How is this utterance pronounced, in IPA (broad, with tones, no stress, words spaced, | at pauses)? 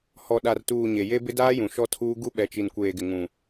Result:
hɔ˨ɗa˨rtuː˨ ɲe˨je˦ bɪ˦daː˦jũ˨ ʃɔ˦tʰuː˦ ɡu˦ɓɛ˨t͡ʃi˨nkʷeː˨ ɡɪ˨ ŋũ˨